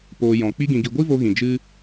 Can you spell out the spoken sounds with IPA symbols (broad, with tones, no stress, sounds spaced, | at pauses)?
p oː˧ j ɔ̃˨ k͡p i˦ ɡ ĩ˧ ɡ i˧ ɡʷ i˦ v o˧ ɣ ĩ˨ d͡ʒ ɨ˦